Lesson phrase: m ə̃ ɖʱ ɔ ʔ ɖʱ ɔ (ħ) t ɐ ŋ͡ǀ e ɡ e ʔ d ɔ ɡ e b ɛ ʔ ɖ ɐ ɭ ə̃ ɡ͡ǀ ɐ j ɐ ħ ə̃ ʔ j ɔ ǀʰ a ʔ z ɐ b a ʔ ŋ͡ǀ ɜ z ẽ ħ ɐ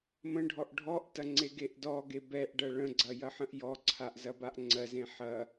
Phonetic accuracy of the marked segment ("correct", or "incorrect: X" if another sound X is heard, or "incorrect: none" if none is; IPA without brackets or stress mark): incorrect: ʔ